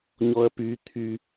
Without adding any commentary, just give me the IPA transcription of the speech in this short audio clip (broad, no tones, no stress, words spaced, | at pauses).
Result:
ɲɔɐ̯py t̪ʰy